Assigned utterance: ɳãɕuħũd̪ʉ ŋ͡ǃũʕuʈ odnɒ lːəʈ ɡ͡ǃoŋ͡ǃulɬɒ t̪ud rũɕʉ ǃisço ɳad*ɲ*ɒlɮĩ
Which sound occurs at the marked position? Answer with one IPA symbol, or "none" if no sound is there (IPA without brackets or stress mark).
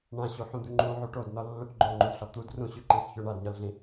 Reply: ɲ